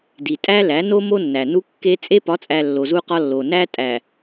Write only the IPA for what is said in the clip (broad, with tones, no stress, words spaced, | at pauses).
di˨tʼæ˦læ˨˦ no˦ mo˦nːæ˨nu˦ kːe˦ t͡sʼe˦pɒ˨˦t͡sʼæ˨ lːo˨zu˦qɒ˦lːo˨ næ˦tʼæ˨